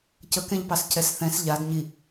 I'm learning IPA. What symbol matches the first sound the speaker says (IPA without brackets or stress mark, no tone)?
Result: c